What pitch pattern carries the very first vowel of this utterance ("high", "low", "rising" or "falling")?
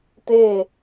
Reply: falling